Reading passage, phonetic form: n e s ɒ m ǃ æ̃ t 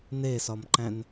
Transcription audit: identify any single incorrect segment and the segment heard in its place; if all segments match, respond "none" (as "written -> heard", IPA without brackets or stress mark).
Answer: t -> n